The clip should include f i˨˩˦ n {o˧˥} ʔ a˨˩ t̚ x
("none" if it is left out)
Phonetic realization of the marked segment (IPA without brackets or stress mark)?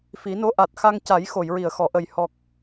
o˧˥